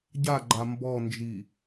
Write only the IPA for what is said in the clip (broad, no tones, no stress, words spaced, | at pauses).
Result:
ɟaɡ͡ǃa mbɔnd͡ʒi